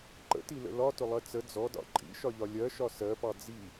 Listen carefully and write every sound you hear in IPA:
ǃə̰tilə̰ lɒtʊlˠɜ t͡sə d͡zɔdɑ̰ ǃʼḭʃɒʎɒ lʲɜʃɒ sɜpɑ d͡zi

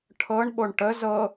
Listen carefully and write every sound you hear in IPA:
ʈʰɤɳɓoɳ ʈə zɤ

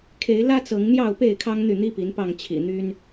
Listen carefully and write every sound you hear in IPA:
kʰe˨˦ɪ̯lä˦ t͡sɤ˨˦ŋn̪jɑ˥˨ʊ̯ pe˥˨ɪ̯kʰɑ˦ŋ n̪y˥˨n̪i˦pi˨˦npɑ˥˨ŋ t͡ɕʰḭ˨˩n̪y˦n

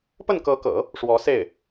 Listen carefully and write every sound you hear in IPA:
pə˥˩nkɤ˧˥kɤ̰˨˩˦ | ʂwɔ˧˥se˥˩ɪ̯

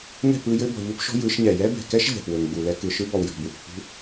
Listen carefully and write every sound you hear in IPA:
ŋɛ̤˦˨p ɯ˦jɘ˦ bɔ̤˨ʎu˦pʃɔ̤˦ jɯ˨˦ʃɲɛ˨ jɛ˦bɛ̤˨kɛ˦ʃ ʎɛ̤˨p wɘ˨ŋɡ͡bu˨lɛ˦ kɯ˨ʃɯ˦ bɔ˨wjɔ̤˨bwṳ˨ hṳ˦

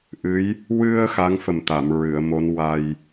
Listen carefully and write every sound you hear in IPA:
ʔɨ˧˥j | wɨ˧ə̯ xa˧˥ŋfə˨˩mt̪a˨˩˨m ɹɨ˨˩˨ə̯mo˧˥n wa˧j

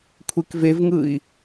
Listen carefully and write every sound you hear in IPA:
kʷʰekvevŋɯi̯

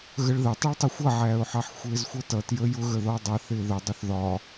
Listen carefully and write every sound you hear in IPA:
ɣəɭðətˤiɭtˤɪ xʷʌʕæːʊ̯ħɑħ xʷɪːzxʷʌtʌtjə jʊɣəðɔ dˤʌ θɪːðʊ dˤʊθðɒ

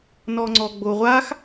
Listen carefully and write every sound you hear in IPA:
nɔŋ͡ǀɔɡ͡boʁʷax

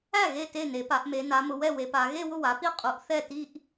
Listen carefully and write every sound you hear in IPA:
æ˥˩ ɣe˥˩ te˥˩ne˩˧pa˩˧ʔme˩˧ na˩˧mʊ˩˧wɛ˥˩ we˩˧pa˩˧ ɣe˥˧wʊ˥˩wa˩˧pi˥˩ qʼu˩˧ʔ θɛ˥˩ti˥˧ʔ

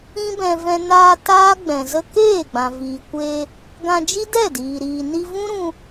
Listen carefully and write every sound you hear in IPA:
ĩ˦bɛ̃˧vɛ̃˧ naː˧ taː˦ɡ͡bɛ̃˨ zə˧ keː˦˨ɡ͡bã˨viː˨kʷeː˧ | ɡã˧d͡ʒi˦dɛ˦˨diː˨ ɾiː˨ni˧vũ˦ɾũ˧

